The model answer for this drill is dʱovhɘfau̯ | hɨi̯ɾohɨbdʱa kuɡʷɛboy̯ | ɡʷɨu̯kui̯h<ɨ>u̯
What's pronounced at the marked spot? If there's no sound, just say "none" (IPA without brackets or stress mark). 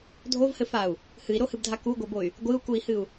ɨ